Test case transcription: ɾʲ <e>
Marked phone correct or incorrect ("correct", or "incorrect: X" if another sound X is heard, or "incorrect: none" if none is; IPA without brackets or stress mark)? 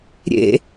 incorrect: ḛ